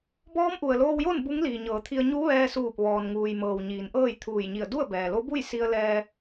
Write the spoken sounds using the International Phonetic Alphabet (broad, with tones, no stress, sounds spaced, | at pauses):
b ɔː˧˥ m ʔ u˩ ə̯ l oː˧ w j o˥˨ n b u˧˥ ŋ l iː˩ ɲ ɤː˩˧ t̪ʰ i˧ ə̯ ɲ u˧˥ ʋ ɛː˧ s uː˧˩ p̚ ʋ ɔː˩ n ŋ uː˩ j m ɤː˩ w ɲ iː˩˧ n ʔ ɤː˥˨ j t̪ʰ uː˧˩ j ɲ i˧˩ ə̯ d u˥˨ ə̯ b ɛː˩ l o˧˥ b u˥˨ j s i˧ ə̯ l ɛː˧